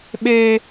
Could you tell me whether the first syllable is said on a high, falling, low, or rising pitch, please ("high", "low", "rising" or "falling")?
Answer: high